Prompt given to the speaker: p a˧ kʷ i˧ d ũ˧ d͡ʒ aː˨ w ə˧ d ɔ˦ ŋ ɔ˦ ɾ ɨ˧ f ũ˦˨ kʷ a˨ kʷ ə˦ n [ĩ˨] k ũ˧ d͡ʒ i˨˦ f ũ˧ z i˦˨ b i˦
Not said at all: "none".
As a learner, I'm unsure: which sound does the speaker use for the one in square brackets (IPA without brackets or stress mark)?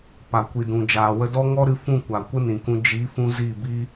ĩ˨